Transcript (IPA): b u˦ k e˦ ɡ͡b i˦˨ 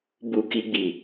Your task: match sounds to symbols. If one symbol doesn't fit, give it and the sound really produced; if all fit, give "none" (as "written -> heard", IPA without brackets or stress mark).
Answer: e˦ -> i˦